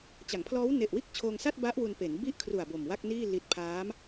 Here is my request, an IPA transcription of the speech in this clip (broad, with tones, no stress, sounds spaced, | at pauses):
t͡ɕ a˩˦ ŋ pʰ l ɔː˦˥ w n e˨˩ ʔ w iː˥˩ k̚ t͡ɕʰ oː˧ ŋ s a˥˩ t̚ b a˦˥ ʔ w u˧ n p e˩˦ n b i˥˩ ʔ kʰ r u˨˩ a̯ b o˨˩ m w a˥˩ k̚ n iː˥˩ l i˦˥ t̚ pʰ aː˦˥ m